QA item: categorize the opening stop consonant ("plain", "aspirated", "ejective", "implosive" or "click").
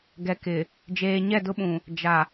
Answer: plain